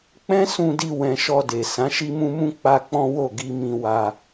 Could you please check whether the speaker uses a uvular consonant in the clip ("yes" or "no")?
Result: no